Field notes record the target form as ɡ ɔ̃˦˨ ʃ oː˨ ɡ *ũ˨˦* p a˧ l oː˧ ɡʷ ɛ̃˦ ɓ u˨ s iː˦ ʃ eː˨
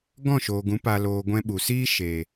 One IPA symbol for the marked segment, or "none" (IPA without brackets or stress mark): ũ˨˦